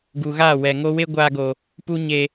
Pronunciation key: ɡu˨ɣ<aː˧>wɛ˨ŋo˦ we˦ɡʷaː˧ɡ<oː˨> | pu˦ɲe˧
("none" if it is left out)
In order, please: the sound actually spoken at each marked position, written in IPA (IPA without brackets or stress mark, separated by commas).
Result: aː˦˨, o˨